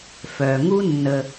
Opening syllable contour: low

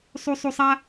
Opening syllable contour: high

